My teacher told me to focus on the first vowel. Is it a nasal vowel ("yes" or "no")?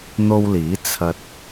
no